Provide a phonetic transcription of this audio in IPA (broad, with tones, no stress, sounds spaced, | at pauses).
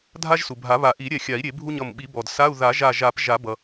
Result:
dʱ a˥ ʒ s u˩ bʱ a˨˩˦ β a˨˩˦ ʔ i˨˩˦ ɾʲ ɛ˧˩ xʲ a˨˩˦ i̯ ɾʲ e˨˩˦ bʱ u˥ ɲ ʌ˧˩ m ɓ i˨˩˦ b ɔ˩ d s a˧˥˧ u̯ ð a˨˩˦ ʒ a˧˩ ʒ a˨˩˦ p ʒ a˨˩˦ b ʌ˩